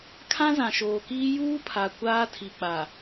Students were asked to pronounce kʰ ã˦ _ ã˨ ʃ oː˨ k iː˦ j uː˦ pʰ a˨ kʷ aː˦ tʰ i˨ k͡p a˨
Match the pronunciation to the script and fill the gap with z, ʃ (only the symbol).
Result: z